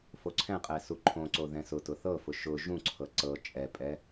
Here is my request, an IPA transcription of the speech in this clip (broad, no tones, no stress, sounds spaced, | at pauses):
f o ǀʰ ɛ̃ qʼ ɛ s u ǃʰ õ ǀ o ð ɛ̃ s ʊ t ʊ θ ɤ f ʊ ʃ ʊ ʒ ũ ǀʰ ɤ ǀ ɤ t͡ʃʼ ɛ pʼ ɛ